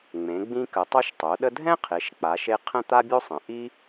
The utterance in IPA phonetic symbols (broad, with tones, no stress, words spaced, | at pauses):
ŋ͡mẽ˩˧ɡ͡bĩ˧kə˩˧ tˤo˧ʃtˤo˩˧ɗə˧ dʱɛ̃˥qʰe˩˧ʃ k͡pa˩˧ʃe˧ qʰə̃˥˧t̪a˥bʲo˥sˤə̃˩˧ ʔi˥